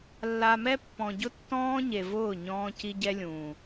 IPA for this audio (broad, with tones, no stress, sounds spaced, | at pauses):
lː a˨ m ɛ˦ pː ɔ̃˨ ɟ ʊ˦ tː ɔ̃ː˦ ɲ e˨ v ʊː˦˨ ɲ ɔ̃ː˦ c i˦ ɟ ɛ˦ lʲ ũː˨